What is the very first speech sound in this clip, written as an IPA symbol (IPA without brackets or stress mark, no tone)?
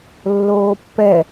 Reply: lː